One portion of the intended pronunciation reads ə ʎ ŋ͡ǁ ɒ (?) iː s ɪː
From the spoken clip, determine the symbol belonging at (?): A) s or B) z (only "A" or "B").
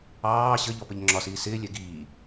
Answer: A